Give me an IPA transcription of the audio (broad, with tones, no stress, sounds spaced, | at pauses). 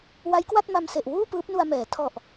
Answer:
w a˦˥ j k w a˥˩ t̚ m a˧ m s e˨˩ ʔ w uː˥˩ p ɯː˦˥ p̚ n u˧ a̯ m ɛː˩˦ tʰ ɔ˨˩ ʔ